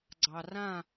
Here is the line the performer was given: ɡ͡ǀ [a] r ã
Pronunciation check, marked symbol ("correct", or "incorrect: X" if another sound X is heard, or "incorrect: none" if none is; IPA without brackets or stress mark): incorrect: ɑ